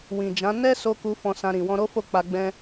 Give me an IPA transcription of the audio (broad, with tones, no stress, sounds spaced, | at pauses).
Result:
w ĩ˨ d͡ʒ ã˨˦ n ɛ˦ s o˧ k u˧ f ɔ̃˧ s ã˧ ɾ ĩ˨ w ɔ̃˧ ɾ o˦ f o˦˨ k͡p a˧ ɡ͡b ɛ̃˧